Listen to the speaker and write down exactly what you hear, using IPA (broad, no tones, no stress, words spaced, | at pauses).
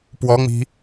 pwɔŋ͡mi̤